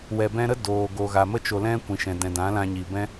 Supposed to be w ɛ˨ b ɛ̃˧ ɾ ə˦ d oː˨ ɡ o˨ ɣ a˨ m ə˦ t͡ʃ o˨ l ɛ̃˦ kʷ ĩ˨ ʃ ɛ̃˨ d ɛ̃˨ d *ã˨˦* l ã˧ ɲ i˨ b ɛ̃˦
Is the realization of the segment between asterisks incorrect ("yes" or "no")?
no